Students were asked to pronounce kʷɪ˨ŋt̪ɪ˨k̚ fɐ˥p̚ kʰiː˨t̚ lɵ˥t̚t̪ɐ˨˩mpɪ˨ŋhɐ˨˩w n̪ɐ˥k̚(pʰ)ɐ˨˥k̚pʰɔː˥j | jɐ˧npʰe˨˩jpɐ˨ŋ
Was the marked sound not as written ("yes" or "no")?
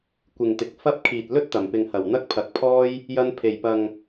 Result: no